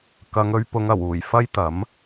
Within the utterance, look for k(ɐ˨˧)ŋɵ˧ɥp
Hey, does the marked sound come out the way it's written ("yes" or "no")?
yes